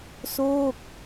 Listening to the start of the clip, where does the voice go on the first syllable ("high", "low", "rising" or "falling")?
falling